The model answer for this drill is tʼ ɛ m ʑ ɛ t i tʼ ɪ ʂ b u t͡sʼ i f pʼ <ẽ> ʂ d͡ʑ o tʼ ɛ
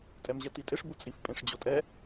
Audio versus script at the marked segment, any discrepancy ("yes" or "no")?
no